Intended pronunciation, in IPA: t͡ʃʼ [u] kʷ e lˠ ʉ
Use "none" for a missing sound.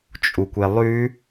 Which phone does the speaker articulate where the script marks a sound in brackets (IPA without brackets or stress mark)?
u